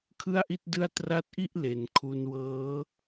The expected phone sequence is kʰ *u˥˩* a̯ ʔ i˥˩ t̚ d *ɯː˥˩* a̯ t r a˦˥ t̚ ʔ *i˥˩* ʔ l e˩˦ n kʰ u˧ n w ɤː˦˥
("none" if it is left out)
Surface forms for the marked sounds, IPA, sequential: ɯ˥˩, ɯ˥˩, i˥˩

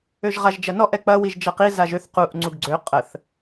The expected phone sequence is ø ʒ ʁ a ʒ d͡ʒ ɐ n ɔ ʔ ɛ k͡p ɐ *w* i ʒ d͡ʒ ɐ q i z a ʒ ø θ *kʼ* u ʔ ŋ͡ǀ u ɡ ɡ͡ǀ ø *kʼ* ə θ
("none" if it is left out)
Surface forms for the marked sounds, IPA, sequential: w, q, qʼ

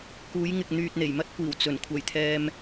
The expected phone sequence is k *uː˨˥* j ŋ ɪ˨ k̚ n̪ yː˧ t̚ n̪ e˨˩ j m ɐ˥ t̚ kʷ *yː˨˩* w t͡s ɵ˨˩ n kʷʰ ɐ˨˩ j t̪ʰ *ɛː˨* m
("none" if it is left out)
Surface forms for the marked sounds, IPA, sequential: uː˨˥, iː˨˩, ɛː˨

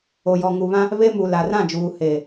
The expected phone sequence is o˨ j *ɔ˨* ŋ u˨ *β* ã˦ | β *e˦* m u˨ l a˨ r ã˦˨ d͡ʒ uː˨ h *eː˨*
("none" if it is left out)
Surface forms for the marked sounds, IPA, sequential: ɔ˨, β, e˦, eː˨

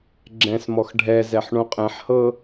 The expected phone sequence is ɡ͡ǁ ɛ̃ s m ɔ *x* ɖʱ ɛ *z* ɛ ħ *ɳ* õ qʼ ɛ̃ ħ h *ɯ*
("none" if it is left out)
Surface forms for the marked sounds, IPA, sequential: x, z, ɳ, ɤ

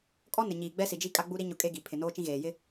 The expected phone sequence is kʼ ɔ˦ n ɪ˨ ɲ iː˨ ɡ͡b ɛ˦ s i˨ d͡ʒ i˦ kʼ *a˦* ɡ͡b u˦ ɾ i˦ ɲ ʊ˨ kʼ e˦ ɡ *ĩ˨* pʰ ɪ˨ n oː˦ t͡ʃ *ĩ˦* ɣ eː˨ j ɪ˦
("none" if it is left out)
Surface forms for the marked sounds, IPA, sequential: a˦, i˨, ĩ˦

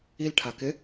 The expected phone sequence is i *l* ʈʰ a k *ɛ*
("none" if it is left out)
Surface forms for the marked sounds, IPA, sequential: l, ɪ

